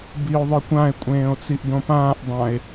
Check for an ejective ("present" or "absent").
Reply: present